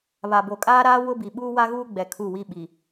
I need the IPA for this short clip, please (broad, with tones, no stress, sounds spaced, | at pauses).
β a˨ b o˨ kʼ aː˦ ɾ aː˦ w ʊ˦ b i˨ ɓ uː˦ w a˦ ɣ uː˦ ɡ͡b ɛ˨ kʰ u˦˨ w i˦ ɓ i˨